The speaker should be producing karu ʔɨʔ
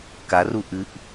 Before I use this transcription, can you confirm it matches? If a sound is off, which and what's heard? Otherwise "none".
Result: none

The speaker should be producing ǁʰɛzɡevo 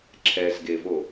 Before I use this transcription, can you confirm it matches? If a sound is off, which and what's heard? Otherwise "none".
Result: none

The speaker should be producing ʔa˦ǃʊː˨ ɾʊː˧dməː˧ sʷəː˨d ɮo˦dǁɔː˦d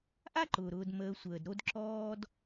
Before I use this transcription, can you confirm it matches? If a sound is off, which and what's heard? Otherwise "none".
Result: ɮ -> ɾ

